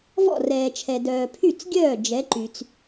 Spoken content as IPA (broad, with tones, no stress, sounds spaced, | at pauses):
v ɔ̰˥˩ r ɛː˨ t͡ʃʰ ɛ˨ d œː˨ pʰ y˥˩ t͡s ɡʲ œː˥˩ d͡ʒ ɛ˨˥ ǃ y˨ t͡s